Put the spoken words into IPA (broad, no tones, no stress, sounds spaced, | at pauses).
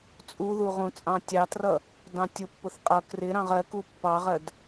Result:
t͡sʼ u ð u ʁ ũ t͡sʼ ɑ̃ tʲ ɑ t r ʌ | d ɑ̃ tʲ ʊ pː ʊ θ qʼ ʌ k r ɪ ɾ ɑ̃ ʁ ɜ k u pː ɑ ʁ ɜ d